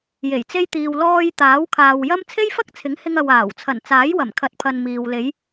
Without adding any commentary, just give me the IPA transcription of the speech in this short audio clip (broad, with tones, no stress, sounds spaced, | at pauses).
j e˨˩ j t͡s e˧ j t̪ iː˨ w l ɔː˧ j t̪ aː˨˥ w kʰ aː˨ w j ɐ˥ m t͡sʰ e˥ j f ɐ˥ k̚ t͡sʰ ɪ˨˥ ŋ h ɪ˧ ŋ ɐ˨ w aː˨˩ w t͡sʰ ɐ˨˩ n t͡s aː˨˥ j w ɐ˨˩ m kʰ ɐ˨˥ t̚ pʰ ɐ˨ n m iː˨ w l e˨˧ j